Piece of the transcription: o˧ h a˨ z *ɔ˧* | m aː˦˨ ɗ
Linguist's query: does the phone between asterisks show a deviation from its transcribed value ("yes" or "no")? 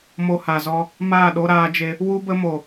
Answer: no